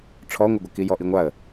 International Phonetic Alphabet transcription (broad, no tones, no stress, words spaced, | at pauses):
ʈ͡ʂʰɔŋʷɪɡʷʌ kijɔʔiŋʷaə̯